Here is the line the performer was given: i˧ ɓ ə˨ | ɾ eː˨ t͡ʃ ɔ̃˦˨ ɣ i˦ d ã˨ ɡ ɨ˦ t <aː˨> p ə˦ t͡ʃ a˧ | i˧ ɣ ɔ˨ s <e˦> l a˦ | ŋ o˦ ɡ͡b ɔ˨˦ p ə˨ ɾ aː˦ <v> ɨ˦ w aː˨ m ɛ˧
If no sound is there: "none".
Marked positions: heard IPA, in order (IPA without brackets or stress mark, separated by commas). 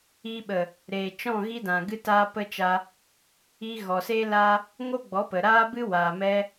aː˦, e˦, b